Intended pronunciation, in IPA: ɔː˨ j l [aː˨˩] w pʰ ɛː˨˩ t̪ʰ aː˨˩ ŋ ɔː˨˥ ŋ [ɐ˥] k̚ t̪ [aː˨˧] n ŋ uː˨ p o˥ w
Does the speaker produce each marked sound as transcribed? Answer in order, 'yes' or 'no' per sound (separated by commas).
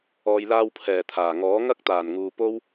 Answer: no, yes, no